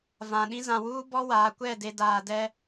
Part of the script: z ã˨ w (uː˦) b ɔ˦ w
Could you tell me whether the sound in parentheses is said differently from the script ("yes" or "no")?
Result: no